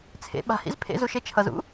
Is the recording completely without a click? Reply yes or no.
yes